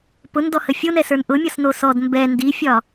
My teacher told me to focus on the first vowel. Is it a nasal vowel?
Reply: no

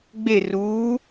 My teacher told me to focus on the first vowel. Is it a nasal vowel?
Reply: no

